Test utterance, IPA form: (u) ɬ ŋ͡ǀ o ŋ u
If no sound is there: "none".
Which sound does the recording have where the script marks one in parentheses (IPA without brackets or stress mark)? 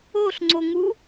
o